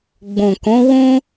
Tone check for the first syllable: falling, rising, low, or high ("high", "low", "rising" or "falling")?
low